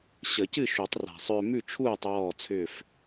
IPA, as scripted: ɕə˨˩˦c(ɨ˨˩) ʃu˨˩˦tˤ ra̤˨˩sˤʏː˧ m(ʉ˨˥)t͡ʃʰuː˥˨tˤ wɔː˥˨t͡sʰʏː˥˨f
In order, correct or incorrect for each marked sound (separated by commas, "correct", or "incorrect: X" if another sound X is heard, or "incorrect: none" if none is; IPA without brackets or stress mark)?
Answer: incorrect: ɨ˥˨, incorrect: ʉ˥˨